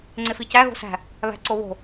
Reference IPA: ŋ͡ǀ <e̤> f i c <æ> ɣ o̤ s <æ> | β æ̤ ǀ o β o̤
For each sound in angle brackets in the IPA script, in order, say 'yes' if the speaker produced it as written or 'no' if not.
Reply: no, yes, no

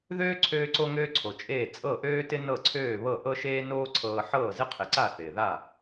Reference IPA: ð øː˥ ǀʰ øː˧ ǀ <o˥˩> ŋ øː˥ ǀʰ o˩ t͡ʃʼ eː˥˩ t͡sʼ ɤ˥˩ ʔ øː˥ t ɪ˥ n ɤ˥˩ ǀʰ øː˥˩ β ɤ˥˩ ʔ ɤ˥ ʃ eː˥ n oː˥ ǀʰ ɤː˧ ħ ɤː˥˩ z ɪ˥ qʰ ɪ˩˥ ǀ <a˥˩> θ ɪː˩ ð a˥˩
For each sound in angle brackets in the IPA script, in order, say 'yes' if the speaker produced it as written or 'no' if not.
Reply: no, yes

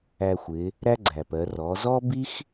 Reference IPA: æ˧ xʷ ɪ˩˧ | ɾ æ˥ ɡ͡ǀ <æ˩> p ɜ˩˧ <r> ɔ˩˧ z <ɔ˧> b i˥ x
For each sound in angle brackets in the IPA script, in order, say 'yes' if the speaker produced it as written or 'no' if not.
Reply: yes, yes, no

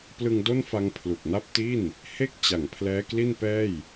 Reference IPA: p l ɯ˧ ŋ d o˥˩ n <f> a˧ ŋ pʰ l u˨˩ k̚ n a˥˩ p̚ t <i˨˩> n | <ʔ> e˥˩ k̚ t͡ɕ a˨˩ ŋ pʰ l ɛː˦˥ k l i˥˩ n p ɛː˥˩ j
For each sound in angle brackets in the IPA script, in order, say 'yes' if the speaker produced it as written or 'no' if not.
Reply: yes, no, no

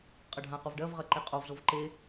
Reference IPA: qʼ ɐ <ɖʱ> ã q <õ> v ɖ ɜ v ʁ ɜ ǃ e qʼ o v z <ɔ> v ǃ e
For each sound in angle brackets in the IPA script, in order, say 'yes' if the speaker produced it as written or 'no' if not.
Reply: yes, no, no

